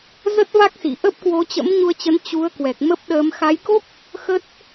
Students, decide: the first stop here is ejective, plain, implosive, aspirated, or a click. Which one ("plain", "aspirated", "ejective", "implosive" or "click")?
plain